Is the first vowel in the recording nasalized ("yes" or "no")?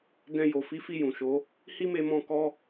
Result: yes